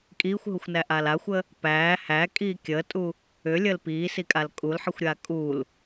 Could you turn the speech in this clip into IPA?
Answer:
kʼ iː xʷ ɦ u xʷ n æ ʔ aː l a xʷ ə | p æː h æ kʼ iː kʲ əː tʼ u | ʏ lʲ əː l p iː s i kʼ a l kʼ u l ħ i xʷ ɾʲ aː kʼ u l

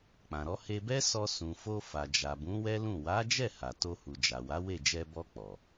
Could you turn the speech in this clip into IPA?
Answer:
k͡p ã˨ ɾ ɔ˨˦ h e˧ b ɛ˦ s ɔ˧ s ũ˨ f o˧ f a˨ d͡ʒ a˨ b ũ˨˦ w ɛ˦ l ũ˦˨ w a˨˦ d͡ʒ ɛ˦˨ h a˨ t o˧ h u˨ d͡ʒ a˨ w a˨˦ w e˦˨ d͡ʒ ɛ˧ b ɔ˧ k͡p ɔ˨

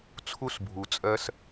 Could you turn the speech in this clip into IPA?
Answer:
t͡sʰ u˥ s bʱ u˩ t͡sʼ ɜ˥ s

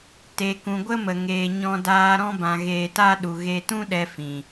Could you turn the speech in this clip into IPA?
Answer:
t e˨ k ũ˨ ɡʷ ə˦ m ə˨ ŋ eː˧ ɲ ɔ̃˧ d aː˧ ɾ ɔ̃˦ b ã˧ ɣ eː˧ t a˦ ɗ u˧ ɣ e˦ t ũ˦ ɗ ɛ˧ f ĩ˨

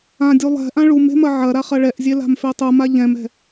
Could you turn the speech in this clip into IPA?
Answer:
ã dʲ u lˠ ɛ̤ ʔ ã ɭ u m e̤ m ɐ ʕ ɐ ɾ a χ ɐ ɭ ɛ ʔ zʲ e l a̤ m f e tˤ u m a ʎ ɛ̃ m ɛ̤

